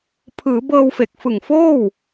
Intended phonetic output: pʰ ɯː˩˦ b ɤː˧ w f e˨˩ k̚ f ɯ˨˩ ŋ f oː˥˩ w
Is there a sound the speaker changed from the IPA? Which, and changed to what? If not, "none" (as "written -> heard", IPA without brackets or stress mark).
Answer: none